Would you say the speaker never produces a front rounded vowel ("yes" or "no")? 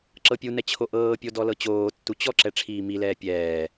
yes